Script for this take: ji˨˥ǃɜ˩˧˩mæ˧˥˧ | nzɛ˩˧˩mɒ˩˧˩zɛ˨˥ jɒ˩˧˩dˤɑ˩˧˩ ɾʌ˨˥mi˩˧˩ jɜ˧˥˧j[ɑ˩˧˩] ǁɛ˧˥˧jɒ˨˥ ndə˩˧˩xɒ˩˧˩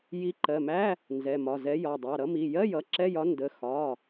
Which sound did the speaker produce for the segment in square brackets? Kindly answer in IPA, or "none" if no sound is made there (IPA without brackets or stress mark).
ʌ˩˧˩